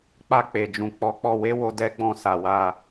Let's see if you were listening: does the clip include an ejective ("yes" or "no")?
no